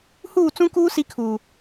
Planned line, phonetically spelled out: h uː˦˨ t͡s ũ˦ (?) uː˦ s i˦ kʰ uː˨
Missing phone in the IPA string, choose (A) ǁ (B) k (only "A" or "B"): B